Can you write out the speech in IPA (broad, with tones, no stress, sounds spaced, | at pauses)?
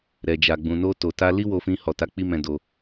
ɾ ɛ˨ d͡ʒ a˨ ɡ͡b ũ˨ n o˧ t o˨ t a˧ l i˦ w o˧ f ĩ˧ h ɔ˨ t a˨˦ k͡p i˧ m ɛ̃˧ d o˧